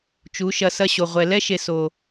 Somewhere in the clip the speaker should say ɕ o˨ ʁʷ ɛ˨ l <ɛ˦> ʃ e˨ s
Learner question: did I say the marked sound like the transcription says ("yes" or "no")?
yes